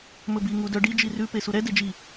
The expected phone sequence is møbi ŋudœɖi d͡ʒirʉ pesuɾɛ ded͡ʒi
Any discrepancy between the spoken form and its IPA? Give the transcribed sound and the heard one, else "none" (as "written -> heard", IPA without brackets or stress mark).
ø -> ɵ